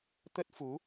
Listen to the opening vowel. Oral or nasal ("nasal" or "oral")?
oral